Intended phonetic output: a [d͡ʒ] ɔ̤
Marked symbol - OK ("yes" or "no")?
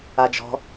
yes